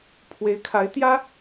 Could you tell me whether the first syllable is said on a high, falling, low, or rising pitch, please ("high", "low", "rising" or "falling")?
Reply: rising